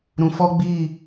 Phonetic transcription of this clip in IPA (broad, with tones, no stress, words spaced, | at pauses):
ɾũ˨fɔ˦ɡ͡biː˦˨